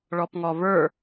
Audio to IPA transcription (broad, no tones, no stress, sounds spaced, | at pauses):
ɭ ɔ p ŋ ɔ v ə˞